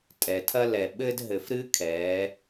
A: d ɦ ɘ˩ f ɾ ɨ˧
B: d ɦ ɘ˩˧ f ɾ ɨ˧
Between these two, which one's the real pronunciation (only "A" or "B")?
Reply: A